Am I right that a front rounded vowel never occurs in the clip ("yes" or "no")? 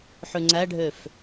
no